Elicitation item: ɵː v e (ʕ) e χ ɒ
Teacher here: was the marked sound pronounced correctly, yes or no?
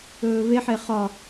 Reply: no